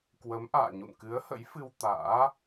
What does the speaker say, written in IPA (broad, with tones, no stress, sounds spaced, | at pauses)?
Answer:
k w ə˨˦ m ʔ a̰ː˧˨ ɲ ṵ˧˨ n k ɨ˨˦ ə̯ h ə̰˧˥ j f ɨ˧ w t̪ a̰ː˧˥